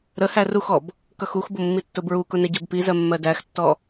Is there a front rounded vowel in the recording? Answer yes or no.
no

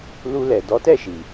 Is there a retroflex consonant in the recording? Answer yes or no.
no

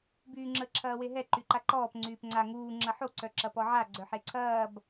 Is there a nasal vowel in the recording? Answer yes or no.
no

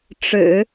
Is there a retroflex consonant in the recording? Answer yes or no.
yes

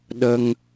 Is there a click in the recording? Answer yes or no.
no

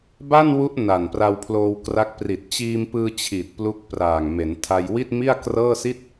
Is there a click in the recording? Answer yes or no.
no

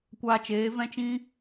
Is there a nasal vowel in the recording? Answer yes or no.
yes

